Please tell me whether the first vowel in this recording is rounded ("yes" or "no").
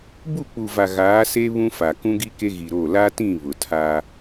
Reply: yes